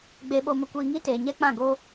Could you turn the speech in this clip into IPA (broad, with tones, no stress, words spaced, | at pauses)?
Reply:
ɡ͡be˧ɓo˧ mə˧kʷiː˧ŋi˦ teː˨ɲɛ˦ k͡pã˦˨ɡoː˦